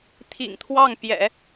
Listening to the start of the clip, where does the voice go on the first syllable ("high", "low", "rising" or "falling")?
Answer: low